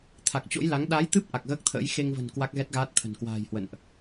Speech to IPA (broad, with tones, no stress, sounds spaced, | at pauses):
t̪ʰ a˨˩ k̚ t͡ɕ o̰˧˥ j l a˨˦ ŋ ɗ a˨˦ j t̪ ɨ˦˥ p̚ ʔ a˨˩ k̚ ɣ əː˦˥ k̚ t̪ʰ ə̰ː˧˥ j x e˧ ŋ v ə̤˨˩ n k w a˦˥ k̚ ɣ ɛ˦˥ t̚ ɣ aː˦˥ t̚ t̪ʰ ə̤˨˩ n k w a̤ː˨˩ j h w ə̰˧˨ n ʔ